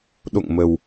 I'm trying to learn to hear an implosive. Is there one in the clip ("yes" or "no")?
yes